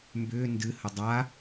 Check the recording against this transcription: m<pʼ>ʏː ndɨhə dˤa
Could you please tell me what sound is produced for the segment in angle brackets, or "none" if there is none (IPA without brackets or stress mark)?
b